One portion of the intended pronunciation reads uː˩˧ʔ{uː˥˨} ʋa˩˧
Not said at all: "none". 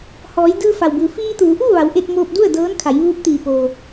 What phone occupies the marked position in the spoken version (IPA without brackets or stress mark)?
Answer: uː˥˨